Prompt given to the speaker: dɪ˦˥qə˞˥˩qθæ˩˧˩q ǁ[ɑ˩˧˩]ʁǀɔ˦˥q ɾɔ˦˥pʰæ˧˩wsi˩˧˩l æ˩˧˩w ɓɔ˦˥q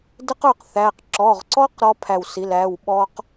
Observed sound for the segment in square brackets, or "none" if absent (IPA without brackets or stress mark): ɔ˩˧˩